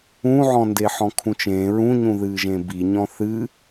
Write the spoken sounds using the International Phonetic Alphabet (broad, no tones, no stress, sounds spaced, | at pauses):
ũ ʕ ɔ̃ n d e ħ ɔ̃ kʰ ũ t͡ʃ ẽː ɹ ũ ɲ ũ ð ɨː ʒ ẽ b i ɲ ɔ̃ θ ɨ